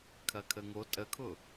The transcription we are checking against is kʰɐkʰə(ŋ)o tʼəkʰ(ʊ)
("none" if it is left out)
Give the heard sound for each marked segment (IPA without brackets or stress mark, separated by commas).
ŋ, ʊ